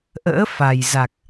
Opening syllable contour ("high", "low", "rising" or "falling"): rising